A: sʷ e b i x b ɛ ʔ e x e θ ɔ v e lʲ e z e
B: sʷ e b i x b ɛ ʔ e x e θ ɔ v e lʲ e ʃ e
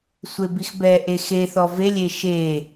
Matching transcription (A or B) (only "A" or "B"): B